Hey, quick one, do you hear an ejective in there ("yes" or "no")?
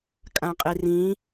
yes